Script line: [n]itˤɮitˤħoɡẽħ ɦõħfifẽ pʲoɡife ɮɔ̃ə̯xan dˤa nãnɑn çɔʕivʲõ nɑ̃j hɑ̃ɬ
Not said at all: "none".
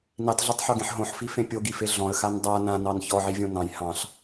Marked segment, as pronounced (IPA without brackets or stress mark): n